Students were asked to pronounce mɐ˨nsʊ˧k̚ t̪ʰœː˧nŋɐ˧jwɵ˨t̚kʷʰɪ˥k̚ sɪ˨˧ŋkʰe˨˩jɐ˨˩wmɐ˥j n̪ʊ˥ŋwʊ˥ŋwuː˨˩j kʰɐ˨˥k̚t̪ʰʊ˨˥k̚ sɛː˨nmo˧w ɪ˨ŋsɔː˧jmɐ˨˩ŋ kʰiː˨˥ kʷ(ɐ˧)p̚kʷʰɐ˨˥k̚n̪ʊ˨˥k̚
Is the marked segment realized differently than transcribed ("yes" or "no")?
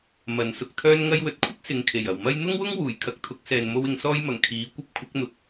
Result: no